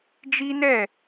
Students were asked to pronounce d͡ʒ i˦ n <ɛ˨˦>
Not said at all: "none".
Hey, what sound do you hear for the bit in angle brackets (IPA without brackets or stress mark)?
ɛ˦˨